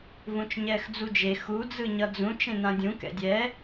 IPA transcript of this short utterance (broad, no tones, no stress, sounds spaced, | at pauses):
v ũ t͡ʃ ɲ ɛː x d͡z u d͡ʒ e x u d͡z ɯ ɲ ʌ d͡z ũ t͡ʃ ẽ n ã dʲ ũ k ɛ̰ dʲ ɛ